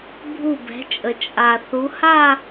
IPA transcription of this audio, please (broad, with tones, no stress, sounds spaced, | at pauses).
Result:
bʱ u˧˩ b ɛ̤˩˧ t͡ʃʼ ə˩ t͡ʃʼ a˩ θ u˩˧ h a˥˧